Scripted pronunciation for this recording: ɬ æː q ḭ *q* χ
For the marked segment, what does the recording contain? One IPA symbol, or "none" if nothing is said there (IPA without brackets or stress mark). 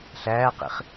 none